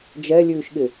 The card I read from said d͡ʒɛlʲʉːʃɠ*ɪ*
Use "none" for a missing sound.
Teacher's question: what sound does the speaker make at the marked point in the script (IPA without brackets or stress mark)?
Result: ɪ